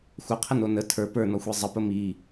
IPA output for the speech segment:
xʷ ə qʰ ə n o n ə tʰ ə˞ p ə˞ n ɔ xʷ i zˤ ə p ə m i

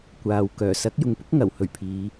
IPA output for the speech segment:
kʷ aː˨ w k œː˨˩ s ɐ˨˥ k̚ j ʊ˨ ŋ p ʊ˥ k̚ ŋ ɐ˨˩ w h ɵ˨˩ ɥ pʰ iː˨˧

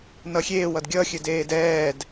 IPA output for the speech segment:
n ʌ xʲ eː w ʌ d ɡʲ ʌ xʲ ɘ d eː d ɛː d

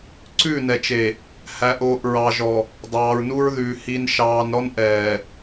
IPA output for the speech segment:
ǀ ʉ˦˨ n ɛ˨ t͡ʃ e˨ | h æ˨ ʔ oː˨ ʔ ɹ ɑ˨ ʒ ɔ˨ | dˤ ɑː˨ ɹ n u˦ ɹ ð ʉː˨ h i˨ n ʃ ɑː˨ n ɾ ɔ˦ n ʔ ɛː˨

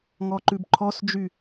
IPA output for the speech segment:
ŋ ɔ ǃ ʉ b ǃʰ ɔ s d͡ʒ y

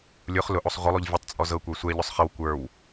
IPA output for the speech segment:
lʲ ʊ χ l ʊ ʔ o sˤ ʁʷ ə lˠ o ʎ vʲ ʊ tˤ t͡sʼ ɔ z ɤ kʷ ə˞ sʷ ɛ ʎ ʊ sˤ χ ə w kʷ ə˞ w

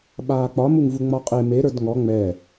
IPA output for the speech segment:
ɓ aː k͡p ɒ m u ŋ v u ŋ͡m ɒ qʼ e m e ɾ ə˞ d ŋ ɔ ŋ͡m ɛ

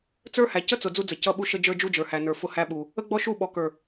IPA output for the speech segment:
t͡s ə˞˦ h æ˨ c ə˦ t͡s ʊ˨ d͡z u˦ d͡z ə˨ c ʌ˦˨ ɓ u˦ ʃ ə˦ d͡ʒ ə˞˦ d͡ʒ u˦ d͡ʒ ə˞˨ h æ˨ n ə˞˨ f ʊ˦ h æ˦ ɓ u˨ | ə˦ ɡ͡b ɔ˦ ʃ u˦˨ ɓ ɔ˨ k ə˞˨

